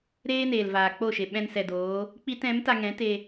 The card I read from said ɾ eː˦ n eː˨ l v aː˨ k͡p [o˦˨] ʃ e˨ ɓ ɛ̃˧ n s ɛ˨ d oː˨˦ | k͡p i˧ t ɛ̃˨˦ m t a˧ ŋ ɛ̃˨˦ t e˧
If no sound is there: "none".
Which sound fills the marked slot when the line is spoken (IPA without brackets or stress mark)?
o˦˨